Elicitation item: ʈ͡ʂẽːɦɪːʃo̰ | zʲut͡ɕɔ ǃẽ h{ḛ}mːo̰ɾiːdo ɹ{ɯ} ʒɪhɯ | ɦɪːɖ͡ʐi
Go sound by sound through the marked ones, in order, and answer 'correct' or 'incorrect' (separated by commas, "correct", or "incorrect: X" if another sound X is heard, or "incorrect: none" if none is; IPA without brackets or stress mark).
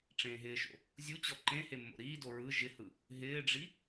incorrect: e, correct